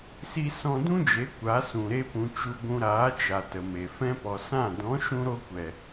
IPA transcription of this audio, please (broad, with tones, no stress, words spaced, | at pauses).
si˦ sɔ̃˧dũ˦d͡ʒe˨˦ kʷa˨˦sũ˨ ɾe˦pũ˧ t͡ʃu˧ ɡʷũ˧ɾaː˨˦ t͡ʃa˨tə˨me˨ fɛ̃˧pɔ˨ sã˦˨ dɔ̃˨˦ʃũ˧ɾo˧kʷɛ˨